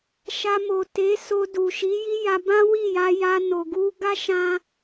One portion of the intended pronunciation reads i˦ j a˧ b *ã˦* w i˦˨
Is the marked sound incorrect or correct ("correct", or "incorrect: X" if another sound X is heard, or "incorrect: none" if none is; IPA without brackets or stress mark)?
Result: correct